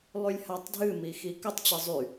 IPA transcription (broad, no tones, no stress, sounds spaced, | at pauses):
lˠ y lʲ h a tˤ dʱ ɨ m i x i k ə tˤ t͡ɕ ɨ zˤ y